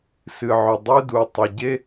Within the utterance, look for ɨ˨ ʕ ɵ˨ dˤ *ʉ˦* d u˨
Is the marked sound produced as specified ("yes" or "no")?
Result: yes